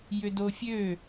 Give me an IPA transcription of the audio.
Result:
j ʏ d o fʲ ø

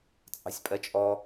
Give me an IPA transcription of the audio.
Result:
t͡sʼ ɑ̤ sʲ pʼ ɜ t͡ʃʼ ɔ

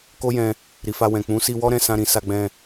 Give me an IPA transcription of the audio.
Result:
k o˦ j ɛ̃˧ | ɾ i˨ f a˧ w ɛ̃˨ k͡p ũ˨˦ s i˧ w ɔ˦ ɾ ɛ̃˦˨ s ã˧ ɾ ĩ˨ s a˧ ɡ͡b ɛ̃˧

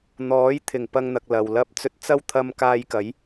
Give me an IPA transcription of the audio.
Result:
n̪ ɔː˨˥ j t̪ʰ ɪ˨˩ ŋ p ɐ˧ ŋ n̪ ɐ˨ k̚ l ɐ˨ w l ɐ˥ p̚ t͡s ɵ˧ t̚ t͡s ɐ˥ w t̪ʰ ɐ˧ m k aː˧ j k ɐ˨˥ j

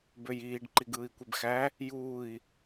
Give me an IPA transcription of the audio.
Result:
b ø j iː ɖ ǃ i ɡ ɯː i̯ kʷ e b x æ | j uː i̯

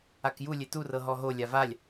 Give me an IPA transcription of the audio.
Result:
a k j u lʲ e t u r ɤ ɦ ɔ ɦ o lʲ a v a lʲ

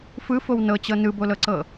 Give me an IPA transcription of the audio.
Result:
f ɯ f o w n ɤ t͡ɕ ɤ n ɯ b o l ɤ ǀ ɤ

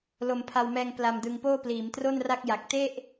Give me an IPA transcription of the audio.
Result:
l o˧ m pʰ a˧ w m ɛː˧ ŋ p l a˧ m d ɯ˧ ŋ p oː˥˩ p l iː˩˦ m t r o˥˩ n r a˥˩ k̚ j a˨˩ k̚ t e˥˩ ʔ

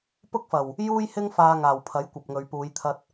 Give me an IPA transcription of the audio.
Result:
p ʊ˥ k̚ f ɐ˨˩ w | j uː˥ j h ɪ˥ ŋ f aː˧ ŋ aː˨˩ w pʰ ɐ˨˥ j kʷ ɐ˨ p̚ ŋ ɵ˨ ɥ p uː˨˧ j t̪ʰ ɐ˧ t̚

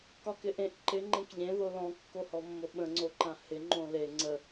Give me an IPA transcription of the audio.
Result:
k ɒ k ɪ ʔ ẽ ʔ ǃ ɪ ŋ͡ǃ ẽ k ʎ ẽ ð o l ɔ̃ kː o h ɔ mː o ɓ ə̃ ŋ͡ǀ o ǃ ã h ɪ ŋ͡ǃ õ l e ŋ͡ǀ ə

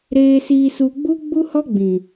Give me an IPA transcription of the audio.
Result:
ɾ eː˧ s iː˧ s u˧ ɡ͡b u˦ ɡ͡b u˦ h ɔ˦ ɡ͡b ĩ˨

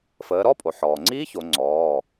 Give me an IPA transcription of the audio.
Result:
f əː˩˧ ɾ ɔ˧˥˧ pʼ o˩ ħ ɔː˩ ŋ͡ǀ iː˦˥ ç o˩˧ ŋ͡ǀ ɔː˩˧˩

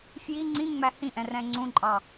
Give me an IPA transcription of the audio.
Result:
f j i ŋ͡ǀ ĩ ŋ͡m æ h ĩ ʔ ɛ̃ r ɛ̃ ŋ͡ǀ ũ ǃʼ ɑ

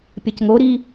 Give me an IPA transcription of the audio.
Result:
pʲ ɐ c ŋ o ɾ i

